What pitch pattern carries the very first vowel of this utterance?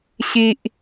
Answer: high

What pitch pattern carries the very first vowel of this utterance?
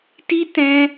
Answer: high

